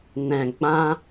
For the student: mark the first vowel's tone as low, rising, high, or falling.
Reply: low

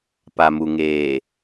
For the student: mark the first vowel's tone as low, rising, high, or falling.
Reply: low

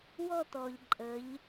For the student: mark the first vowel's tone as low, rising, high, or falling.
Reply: falling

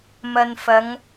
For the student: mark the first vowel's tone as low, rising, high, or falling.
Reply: low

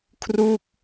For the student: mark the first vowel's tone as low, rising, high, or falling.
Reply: falling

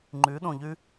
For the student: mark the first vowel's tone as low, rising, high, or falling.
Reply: rising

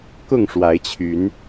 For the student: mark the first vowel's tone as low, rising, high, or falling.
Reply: falling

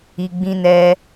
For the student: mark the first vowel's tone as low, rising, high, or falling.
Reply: low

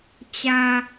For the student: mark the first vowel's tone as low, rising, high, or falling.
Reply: low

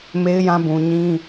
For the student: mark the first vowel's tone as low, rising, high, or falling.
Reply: high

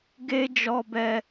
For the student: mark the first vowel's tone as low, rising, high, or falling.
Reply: high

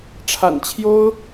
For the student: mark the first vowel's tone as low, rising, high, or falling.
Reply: low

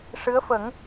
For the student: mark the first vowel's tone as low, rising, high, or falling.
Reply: rising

